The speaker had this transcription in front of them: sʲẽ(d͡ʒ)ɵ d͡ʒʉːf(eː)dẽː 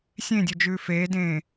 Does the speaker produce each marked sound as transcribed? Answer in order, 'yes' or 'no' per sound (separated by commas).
no, yes